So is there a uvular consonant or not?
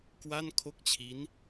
no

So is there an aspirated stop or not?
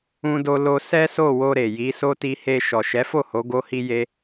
no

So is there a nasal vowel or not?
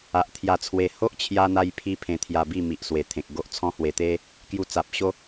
yes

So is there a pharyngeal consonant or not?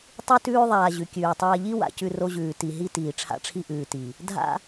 no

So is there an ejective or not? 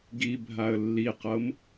no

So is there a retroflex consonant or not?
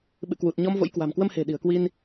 no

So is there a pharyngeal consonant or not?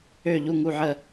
yes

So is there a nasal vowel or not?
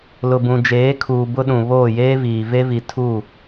yes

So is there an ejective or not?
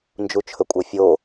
yes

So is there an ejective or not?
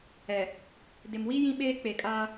yes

